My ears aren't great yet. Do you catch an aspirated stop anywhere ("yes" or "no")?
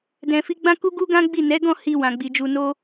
no